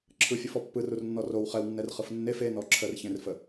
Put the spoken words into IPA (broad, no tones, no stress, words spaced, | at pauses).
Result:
ǁʰɯfʲɯfɔ pːɯrurnːɔ row χɛwnːɛrχɯf nːef enɔ ǁʰərçẽrfə